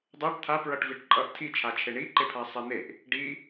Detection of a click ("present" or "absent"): present